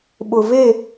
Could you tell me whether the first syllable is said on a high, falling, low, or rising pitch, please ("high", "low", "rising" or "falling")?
low